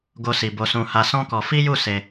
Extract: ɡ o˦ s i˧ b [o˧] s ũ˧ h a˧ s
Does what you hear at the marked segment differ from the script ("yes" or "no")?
no